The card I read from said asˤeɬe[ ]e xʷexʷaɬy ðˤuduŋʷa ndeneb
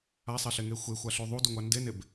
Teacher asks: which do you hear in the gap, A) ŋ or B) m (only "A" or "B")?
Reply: A